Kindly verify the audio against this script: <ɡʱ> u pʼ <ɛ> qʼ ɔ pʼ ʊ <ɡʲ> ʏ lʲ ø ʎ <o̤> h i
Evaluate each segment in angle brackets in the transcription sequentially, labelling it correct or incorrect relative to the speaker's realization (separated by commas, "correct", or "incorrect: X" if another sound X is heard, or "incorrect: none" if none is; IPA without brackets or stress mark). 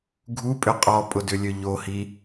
correct, incorrect: ʏ, incorrect: d, incorrect: o